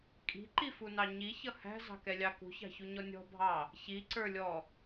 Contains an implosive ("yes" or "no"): no